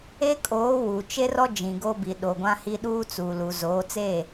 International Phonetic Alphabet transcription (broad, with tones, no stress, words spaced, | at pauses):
e˦kʼoː˨˦ wu˨ t͡ʃe˦rɔ˦ d͡ʒĩ˨ɡo˦ bi˨ɗo˨ɡʷã˦hi˦ ɗuː˦t͡suː˨lu˨ zoː˨˦t͡se˦˨